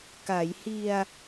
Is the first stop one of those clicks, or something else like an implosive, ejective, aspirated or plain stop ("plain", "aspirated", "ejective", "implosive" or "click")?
plain